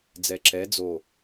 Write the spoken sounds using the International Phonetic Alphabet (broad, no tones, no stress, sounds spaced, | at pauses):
d͡z ɛ ǁ ɛ d͡z o